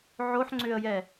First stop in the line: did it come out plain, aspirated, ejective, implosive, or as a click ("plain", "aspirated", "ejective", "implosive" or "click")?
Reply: click